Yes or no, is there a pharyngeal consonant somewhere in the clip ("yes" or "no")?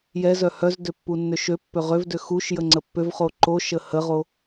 no